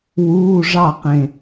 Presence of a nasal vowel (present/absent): present